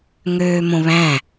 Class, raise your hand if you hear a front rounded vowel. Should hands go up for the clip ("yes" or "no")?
yes